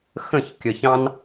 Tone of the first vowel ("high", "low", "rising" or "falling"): falling